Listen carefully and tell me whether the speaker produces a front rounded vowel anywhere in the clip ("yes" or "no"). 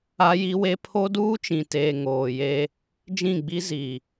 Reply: no